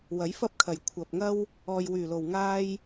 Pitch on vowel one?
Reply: rising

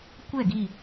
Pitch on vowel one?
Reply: falling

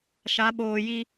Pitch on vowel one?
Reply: rising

